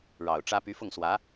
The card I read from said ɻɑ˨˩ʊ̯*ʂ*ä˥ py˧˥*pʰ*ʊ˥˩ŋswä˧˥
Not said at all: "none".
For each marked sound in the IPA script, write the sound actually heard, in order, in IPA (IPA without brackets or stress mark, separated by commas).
ʈ͡ʂ, f